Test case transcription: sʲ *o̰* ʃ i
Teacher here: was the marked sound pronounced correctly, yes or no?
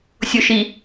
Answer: no